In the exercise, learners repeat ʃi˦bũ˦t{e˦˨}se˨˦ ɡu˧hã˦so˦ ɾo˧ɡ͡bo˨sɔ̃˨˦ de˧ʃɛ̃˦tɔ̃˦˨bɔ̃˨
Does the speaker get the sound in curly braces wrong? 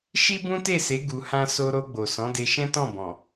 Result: no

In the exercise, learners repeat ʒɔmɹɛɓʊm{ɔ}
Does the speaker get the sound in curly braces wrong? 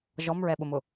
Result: yes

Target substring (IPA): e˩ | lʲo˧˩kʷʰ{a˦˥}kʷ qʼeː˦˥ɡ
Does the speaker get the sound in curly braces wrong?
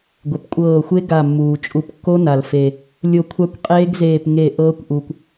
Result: no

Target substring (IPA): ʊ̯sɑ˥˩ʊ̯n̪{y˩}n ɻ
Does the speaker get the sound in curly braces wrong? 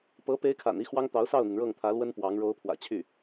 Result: yes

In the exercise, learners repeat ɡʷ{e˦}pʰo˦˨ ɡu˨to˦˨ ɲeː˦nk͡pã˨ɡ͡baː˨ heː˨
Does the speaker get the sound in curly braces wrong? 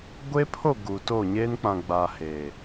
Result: no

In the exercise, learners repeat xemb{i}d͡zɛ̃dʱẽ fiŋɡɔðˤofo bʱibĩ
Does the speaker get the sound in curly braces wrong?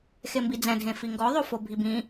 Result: no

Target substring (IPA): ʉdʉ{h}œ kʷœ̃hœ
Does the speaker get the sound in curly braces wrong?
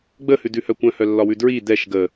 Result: no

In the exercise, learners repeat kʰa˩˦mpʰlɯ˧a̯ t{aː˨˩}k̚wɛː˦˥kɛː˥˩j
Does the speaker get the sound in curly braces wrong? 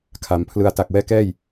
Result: yes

